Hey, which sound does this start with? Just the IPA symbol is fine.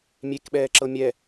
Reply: mʲ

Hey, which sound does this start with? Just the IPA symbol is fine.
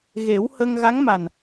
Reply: ɣ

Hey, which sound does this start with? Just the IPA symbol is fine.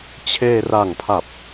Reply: t͡ɕʰ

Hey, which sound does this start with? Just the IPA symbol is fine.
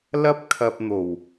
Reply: l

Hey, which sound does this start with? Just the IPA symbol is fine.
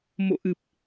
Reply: m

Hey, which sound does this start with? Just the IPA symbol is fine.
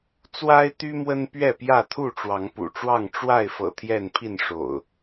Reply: t͡s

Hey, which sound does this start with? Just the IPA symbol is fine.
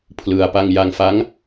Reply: pʰ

